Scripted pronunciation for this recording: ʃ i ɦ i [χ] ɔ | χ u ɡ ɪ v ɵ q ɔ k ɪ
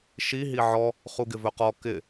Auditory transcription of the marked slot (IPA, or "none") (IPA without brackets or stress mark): ʕ